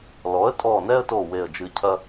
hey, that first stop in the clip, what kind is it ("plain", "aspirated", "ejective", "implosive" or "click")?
ejective